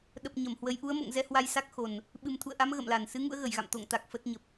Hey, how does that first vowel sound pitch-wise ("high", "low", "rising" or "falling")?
low